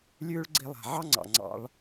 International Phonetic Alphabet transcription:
lʲ ʉː˦ ɭ ɡ͡ǀ i˧ lˠ a̤˨ ʕ ɑ˦ ŋ͡ǀ ɑ̰˨ ŋ͡ǀ ɑ̰˧ ɭ

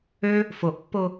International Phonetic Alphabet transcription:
ø | f o ʔ pː o

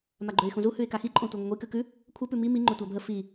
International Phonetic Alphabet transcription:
m a ɡ͡ǃ ø ɪ̯ x ũ z u h ʉ ɪ̯ k a x i ǃʼ õ tʷ e ŋʷ ɪ ŋʷ i k ʉ k ʉ | kʷʰ ə p ʉ m i m i ŋ͡ǃ ø tʷ a bʱ ə f i

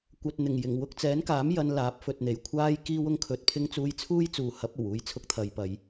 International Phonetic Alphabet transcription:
kʷ ɐ˨ t̚ n̪ ɪ˨˩ ŋ j ɪ˨˩ ŋ w ʊ˧ k̚ t͡s ɛː˨˥ n k aː˨˥ m j ɐ˧ n l aː˨˥ p̚ f ɵ˨ t̚ n̪ e˨˩ j kʷʰ aː˥ j k iː˧ w ʊ˧ ŋ kʰ ɵ˨ t̚ pʰ ɪ˧ ŋ t͡s uː˧ j t͡sʰ uː˥ j t͡s uː˨ h ɐ˨˥ p̚ o˨˩ w uː˧ j t͡sʰ ʊ˧ k̚ t̪ʰ ɐ˨ j p ɐ˨˧ j

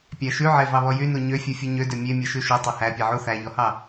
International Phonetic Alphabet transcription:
pʲ æ ʃ ʉ ʕ e v ɑ β ɔ j y n u ɲ ø fʲ u fʲ o ɲ ø d ø mʲ e mʲ e ʃ ʉ ʃ o tˤ ø h æ pʲ e ʕ u θ æ ʎ ɔ h ɑ

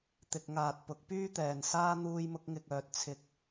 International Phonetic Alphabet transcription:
t̪ ɪ˧ k̚ ŋ aː˨ t̚ p ʊ˨˥ k̚ p yː˥ t̪ ɛː˨ n s aː˥ n̪ uː˧ j m ʊ˧ k̚ ŋ ɪ˨ k̚ œː˨ t̚ t͡sʰ ɪ˨˥ k̚

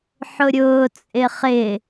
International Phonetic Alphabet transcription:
ħ ʊ ɾʲ ʊː t͡sʼ ɪ χ ɪ

